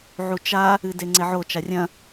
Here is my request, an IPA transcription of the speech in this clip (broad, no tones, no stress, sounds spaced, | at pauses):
ʕ u t͡ʃ a | ɨ d e ŋ͡ǀ e ʕ o t͡ʃ a rʲ ɐ̃